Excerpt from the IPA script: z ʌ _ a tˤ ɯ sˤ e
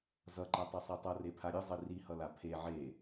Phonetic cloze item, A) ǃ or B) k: A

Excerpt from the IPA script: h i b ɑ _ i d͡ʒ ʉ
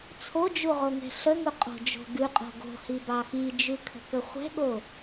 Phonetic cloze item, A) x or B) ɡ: A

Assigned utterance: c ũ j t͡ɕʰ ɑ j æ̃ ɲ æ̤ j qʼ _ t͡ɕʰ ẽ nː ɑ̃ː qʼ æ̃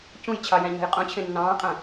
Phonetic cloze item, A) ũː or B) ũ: B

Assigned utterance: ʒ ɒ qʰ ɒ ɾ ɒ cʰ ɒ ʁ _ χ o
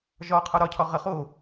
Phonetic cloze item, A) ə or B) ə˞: A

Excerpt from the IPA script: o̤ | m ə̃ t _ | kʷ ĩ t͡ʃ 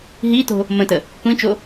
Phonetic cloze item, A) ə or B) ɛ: A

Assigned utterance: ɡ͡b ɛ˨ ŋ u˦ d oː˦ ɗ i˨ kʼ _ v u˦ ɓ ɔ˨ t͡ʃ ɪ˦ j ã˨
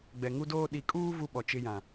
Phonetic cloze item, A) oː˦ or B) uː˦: B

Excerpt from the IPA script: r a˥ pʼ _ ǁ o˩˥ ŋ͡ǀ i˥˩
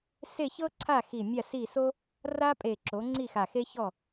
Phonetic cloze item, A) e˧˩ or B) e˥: A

